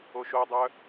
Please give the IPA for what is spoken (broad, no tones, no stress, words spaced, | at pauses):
oʃodˤœ